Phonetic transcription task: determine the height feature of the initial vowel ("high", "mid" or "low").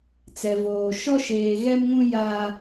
mid